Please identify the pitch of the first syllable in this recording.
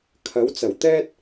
rising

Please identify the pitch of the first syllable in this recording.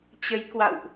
rising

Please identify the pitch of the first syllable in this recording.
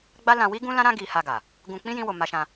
high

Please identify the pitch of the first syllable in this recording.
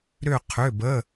falling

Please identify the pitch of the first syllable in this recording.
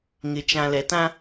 low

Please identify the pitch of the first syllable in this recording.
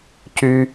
high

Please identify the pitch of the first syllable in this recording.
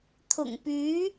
low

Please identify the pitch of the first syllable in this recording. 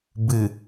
low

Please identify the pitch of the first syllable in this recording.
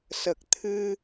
low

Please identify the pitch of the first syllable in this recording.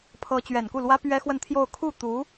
rising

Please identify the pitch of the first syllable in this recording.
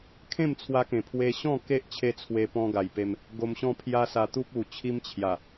falling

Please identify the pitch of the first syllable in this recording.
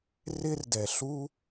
high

